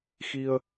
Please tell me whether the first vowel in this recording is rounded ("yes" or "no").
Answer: no